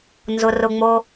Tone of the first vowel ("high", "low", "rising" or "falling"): low